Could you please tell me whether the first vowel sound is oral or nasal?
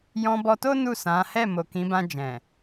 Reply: nasal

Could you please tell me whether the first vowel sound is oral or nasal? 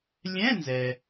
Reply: nasal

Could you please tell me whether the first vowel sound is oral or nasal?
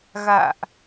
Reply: oral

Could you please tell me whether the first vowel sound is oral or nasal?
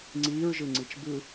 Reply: oral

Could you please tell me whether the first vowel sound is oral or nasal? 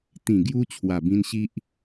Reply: nasal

